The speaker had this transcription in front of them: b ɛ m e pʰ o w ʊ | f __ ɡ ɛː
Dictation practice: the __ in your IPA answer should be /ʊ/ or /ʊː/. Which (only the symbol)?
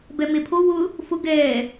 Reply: ʊ